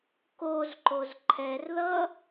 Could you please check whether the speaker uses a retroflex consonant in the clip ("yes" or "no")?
no